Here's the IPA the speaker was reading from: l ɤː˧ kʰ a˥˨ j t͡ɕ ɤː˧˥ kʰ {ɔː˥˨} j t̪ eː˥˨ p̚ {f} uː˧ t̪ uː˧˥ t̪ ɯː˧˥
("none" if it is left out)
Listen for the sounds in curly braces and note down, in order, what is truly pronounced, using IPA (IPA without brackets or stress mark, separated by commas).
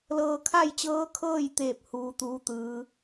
ɤː˥˨, h